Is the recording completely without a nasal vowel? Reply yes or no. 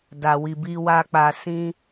no